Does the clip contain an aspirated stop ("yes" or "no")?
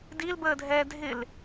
no